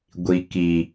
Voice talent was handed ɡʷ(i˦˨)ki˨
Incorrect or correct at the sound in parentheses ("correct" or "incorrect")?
incorrect